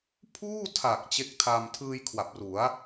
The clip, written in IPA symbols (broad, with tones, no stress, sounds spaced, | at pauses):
pʰ uː˥˩ tʰ a˨˩ k̚ t͡ɕ e˦˥ k̚ tʰ a˧ m tʰ ɯː˧ j kʰ w a˨˩ p̚ r u˩˦ a̯